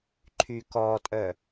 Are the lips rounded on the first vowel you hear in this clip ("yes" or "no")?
yes